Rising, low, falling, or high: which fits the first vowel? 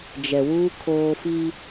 low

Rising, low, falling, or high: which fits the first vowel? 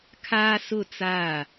high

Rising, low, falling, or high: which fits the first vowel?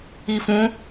low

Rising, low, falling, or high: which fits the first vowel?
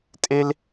high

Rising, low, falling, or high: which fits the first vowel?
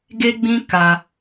high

